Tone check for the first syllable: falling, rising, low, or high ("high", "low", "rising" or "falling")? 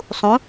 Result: rising